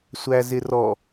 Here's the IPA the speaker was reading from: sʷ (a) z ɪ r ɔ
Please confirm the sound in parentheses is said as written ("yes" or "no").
no